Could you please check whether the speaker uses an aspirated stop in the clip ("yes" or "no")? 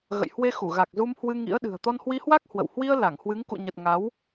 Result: no